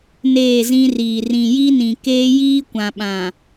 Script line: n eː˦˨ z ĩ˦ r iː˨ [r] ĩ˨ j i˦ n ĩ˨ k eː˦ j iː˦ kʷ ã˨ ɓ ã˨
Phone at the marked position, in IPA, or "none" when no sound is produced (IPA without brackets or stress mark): r